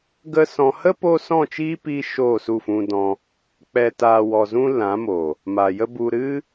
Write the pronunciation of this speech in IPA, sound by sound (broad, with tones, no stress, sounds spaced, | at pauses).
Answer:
ɡ ə˦ s ɔ̃˧ h ə˦ p o˧ s ɔ̃˦˨ t͡ʃ iː˦ p iː˧ ʃ oː˦˨ s u˦˨ f ũ˧ d ɔ̃˧ | k͡p ɛ˨ t aː˨ w ɔ˨ z ũ˧ l ã˨˦ m o˨ | m a˨ j ə˦ b u˧ ɾ ɨ˦